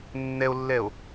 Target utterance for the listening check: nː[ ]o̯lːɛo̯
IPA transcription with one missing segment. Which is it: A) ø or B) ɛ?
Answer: B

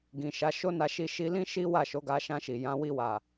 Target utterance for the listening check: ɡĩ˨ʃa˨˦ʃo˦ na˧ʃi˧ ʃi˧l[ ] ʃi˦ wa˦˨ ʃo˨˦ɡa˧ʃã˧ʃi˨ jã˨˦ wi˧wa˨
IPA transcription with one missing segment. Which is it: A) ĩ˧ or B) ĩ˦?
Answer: B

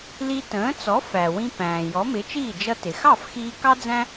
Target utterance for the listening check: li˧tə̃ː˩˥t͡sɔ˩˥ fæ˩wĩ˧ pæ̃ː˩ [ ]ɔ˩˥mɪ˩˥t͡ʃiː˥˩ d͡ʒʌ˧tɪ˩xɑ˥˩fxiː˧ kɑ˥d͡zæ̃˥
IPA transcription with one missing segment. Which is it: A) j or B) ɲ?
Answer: A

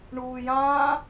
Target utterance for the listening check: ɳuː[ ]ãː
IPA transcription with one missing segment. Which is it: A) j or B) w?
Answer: A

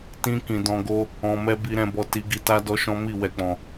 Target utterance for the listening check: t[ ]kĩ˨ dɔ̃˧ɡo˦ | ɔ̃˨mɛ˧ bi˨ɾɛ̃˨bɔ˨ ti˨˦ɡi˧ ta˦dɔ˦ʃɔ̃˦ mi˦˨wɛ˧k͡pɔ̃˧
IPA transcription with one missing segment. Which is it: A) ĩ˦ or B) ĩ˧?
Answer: B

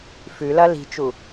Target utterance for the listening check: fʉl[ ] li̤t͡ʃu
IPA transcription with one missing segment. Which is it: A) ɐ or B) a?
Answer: A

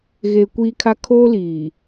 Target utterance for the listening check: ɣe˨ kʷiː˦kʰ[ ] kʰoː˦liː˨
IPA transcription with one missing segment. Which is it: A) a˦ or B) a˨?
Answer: A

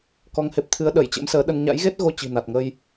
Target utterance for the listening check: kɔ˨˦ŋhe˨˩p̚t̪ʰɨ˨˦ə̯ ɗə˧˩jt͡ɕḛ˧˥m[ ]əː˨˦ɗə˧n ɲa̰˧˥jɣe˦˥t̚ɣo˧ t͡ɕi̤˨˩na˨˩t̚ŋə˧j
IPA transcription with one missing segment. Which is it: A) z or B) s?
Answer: B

